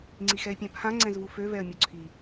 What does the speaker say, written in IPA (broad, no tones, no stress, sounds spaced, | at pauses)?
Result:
ŋ͡ǀ i x ɛ ɪ̯ pʲ ã pʰ ã ŋ͡ǀ ɛ̃ z v u f ø v ɛ ə̯ mʲ o ǀʰ i